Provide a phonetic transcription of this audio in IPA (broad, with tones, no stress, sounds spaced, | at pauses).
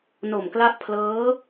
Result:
n o˨˩ m k l a˦˥ ʔ pʰ l ɤː˦˥